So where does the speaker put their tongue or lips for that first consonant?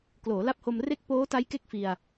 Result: velum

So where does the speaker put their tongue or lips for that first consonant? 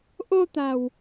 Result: throat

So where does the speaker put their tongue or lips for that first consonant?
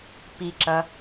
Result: lips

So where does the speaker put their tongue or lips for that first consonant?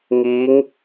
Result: velum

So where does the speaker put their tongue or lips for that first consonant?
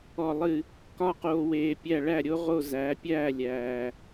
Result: tongue tip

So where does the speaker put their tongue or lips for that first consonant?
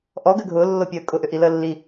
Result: throat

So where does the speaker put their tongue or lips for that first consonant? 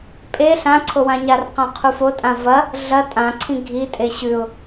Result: lips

